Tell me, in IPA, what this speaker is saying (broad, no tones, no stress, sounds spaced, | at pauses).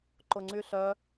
ǃ ʊ ŋ͡ǀ y ɬ œ